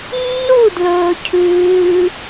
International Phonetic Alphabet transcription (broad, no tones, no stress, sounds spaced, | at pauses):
nː u d l ɵː cʰ ʉː